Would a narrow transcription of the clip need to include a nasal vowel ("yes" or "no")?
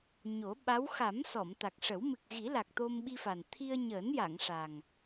no